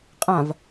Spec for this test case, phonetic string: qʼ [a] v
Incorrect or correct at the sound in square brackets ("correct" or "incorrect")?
incorrect